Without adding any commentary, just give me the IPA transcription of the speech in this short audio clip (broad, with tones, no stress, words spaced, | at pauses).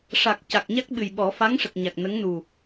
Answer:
ʂa˨˩k̚ ca˨˩k̚ɲa˦˥k̚ɓɨ˨˩jɓɔ˨˩˦ fa˧˥ŋʂə˨˩k̚ɲa˨˩k̚ nə˧˥ŋnu˨˩